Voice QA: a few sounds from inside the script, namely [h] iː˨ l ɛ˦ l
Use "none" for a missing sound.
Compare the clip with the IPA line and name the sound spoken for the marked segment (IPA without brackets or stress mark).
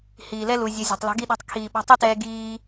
h